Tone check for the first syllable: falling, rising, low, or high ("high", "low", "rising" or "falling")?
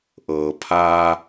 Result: low